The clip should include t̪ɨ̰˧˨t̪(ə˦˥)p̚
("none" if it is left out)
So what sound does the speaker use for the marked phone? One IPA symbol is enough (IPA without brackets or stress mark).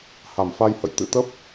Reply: ə˦˥